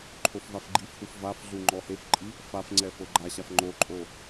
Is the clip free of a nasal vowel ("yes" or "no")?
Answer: yes